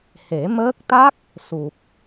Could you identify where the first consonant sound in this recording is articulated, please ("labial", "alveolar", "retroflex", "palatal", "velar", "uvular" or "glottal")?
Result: glottal